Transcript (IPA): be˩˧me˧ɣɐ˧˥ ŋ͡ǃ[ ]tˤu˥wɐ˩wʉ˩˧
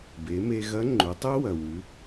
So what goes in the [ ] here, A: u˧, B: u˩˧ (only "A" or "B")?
B